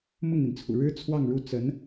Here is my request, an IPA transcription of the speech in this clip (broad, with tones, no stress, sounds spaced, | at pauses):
m ʊ˥˩ ŋ n̪ i˩ n t͡sʰ ṵ˨˩ ɻ ɻ̩˥ t͡sʰ w ɑ˥˧ ŋ ɻ u˥˩ t͡s ə˧˥ n